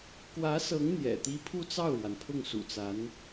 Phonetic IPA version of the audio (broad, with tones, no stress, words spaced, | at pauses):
kwä˧˥sɤ˧˥ŋ n̪jɛ̰˨˩t̪i˥ pʰu˥˧t͡sɑ˥˩ʊ̯ɻwa˩n pʰʊ˥˩ŋsṵ˨˩t͡sa˧˥n